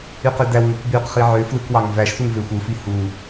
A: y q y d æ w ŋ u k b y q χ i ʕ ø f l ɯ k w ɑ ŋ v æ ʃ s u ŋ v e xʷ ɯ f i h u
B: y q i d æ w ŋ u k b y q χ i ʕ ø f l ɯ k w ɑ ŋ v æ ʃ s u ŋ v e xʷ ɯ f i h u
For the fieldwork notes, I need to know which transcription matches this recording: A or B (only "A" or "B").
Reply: A